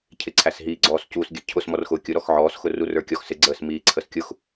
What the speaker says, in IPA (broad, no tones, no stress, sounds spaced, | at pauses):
cʰ ɪ ǀʰ æ s ɦ iː ɡ͡ǀ ɔː s c uː s ɡʲ ə cʰ ʊ s m ɔ r x ʊ kʲ ʊ ɾ ɔ x ʕ ɔː s x ʊ r u r ə˞ kʲ ɔ x s ɪ ɡ͡ǀ əː s m iː ǀʰ ə s kʲ ʊ x